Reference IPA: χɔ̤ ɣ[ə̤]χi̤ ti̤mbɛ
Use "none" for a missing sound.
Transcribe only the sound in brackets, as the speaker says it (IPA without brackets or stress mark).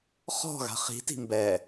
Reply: a̤